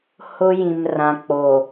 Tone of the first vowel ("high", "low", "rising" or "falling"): high